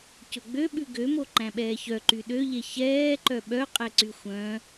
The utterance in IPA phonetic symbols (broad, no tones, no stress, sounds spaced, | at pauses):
c ɵ ɡ͡b ø ɓ ʉ ɡ ø m o ǃ æ̃ ɓ ɛː ç œ ǃ y ɗ ø ʎ e ç ɛː ǃ œ ɓ œ qʼ ɛ ǀ y xʷ œ̃